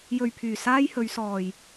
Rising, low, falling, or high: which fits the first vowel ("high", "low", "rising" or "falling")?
low